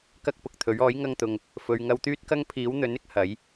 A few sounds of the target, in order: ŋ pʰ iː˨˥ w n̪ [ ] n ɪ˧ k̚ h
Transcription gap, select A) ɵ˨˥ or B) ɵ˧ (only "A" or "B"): A